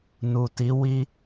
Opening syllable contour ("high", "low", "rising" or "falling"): low